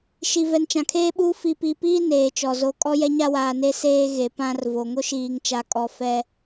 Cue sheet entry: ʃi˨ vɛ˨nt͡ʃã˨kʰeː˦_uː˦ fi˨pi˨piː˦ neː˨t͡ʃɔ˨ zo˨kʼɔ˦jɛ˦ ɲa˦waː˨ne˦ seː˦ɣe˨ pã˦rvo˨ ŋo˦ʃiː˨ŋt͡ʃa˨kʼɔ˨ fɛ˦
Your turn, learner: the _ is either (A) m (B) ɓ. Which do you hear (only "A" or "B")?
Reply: B